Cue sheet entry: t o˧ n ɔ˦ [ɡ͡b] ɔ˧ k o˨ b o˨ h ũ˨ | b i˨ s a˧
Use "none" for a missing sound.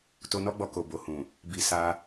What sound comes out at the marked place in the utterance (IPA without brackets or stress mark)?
ɡ͡b